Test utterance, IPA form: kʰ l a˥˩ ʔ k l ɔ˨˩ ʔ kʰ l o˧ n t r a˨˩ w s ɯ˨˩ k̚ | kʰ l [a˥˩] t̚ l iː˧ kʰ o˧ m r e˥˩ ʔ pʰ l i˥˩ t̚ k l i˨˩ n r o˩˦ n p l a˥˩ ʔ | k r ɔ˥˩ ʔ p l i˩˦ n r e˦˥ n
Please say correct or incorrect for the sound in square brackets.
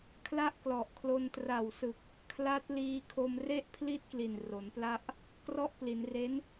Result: incorrect